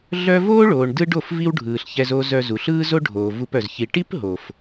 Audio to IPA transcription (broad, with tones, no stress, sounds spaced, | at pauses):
ɮ œ˦ v oː˦ ɭ oː˨ ɳ d ɯ˦ ɖ o˦˨ f v i˦ w ɖʱ ɯː˨ ɬ ç ɛ˧ z o˧ z œ˧ z u˨ ɬ ɯː˦ z o˦ ɖʱ oː˨ v u˧ p œ˨ z ç i˨ ʈ i˦ p ɦ o˨ f